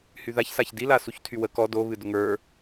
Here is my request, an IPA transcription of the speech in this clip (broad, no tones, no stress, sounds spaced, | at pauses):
h y ð a ç s a ç d i l a s u ç tʰ y w ə k ɔ d o β ɨ d ʊ ŋ ə˞